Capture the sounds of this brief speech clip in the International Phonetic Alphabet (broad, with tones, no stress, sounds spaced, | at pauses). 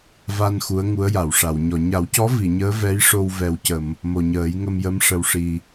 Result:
v a˧ n x u˧˥ ə̯ ŋ u˧˥ ə̯ j a˨˩˨ w ʂ a˨˩˨ w ɲ ɔ˨˩˨ ɲ a˨˩˦ w c ɔ˧˥ v i˨˩˨ ɲ əː˧˥ v ɛ˧˥ j ʂ o˧ w v ɛ˨˩ w c ə˨˩˨ m | m o˨˩ ɲ əː˨˩˦ j ŋ ə˧ m j ə˧˥ m ʂ ə˨˩ w ʂ i˨˩